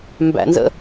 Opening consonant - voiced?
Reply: yes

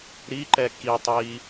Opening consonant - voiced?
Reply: yes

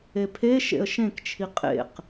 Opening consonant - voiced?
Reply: no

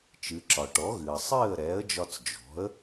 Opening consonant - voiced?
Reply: no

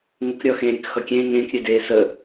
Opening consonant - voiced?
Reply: yes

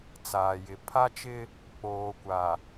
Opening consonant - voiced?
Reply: no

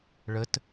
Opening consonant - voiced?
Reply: yes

